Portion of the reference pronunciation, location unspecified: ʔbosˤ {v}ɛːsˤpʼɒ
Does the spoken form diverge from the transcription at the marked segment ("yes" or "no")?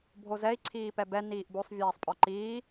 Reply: yes